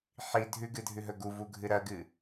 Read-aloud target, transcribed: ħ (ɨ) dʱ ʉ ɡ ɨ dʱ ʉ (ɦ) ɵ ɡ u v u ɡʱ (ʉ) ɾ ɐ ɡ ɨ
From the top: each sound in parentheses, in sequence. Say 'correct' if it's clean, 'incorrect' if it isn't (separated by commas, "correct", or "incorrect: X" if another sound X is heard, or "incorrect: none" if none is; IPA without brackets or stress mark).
incorrect: i, correct, incorrect: ɨ